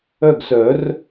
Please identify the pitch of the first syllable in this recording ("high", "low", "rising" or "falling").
falling